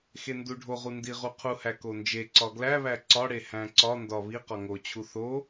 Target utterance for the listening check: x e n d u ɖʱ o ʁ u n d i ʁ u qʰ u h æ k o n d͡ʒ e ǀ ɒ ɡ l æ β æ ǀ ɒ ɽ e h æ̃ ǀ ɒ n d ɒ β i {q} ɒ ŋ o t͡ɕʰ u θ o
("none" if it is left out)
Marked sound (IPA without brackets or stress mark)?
q